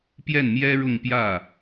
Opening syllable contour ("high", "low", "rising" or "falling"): falling